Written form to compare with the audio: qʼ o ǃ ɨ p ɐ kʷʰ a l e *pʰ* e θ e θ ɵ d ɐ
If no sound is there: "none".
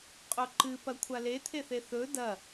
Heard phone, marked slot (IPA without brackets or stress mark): t̪ʰ